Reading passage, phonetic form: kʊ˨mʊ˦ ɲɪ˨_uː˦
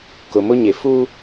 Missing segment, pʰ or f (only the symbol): f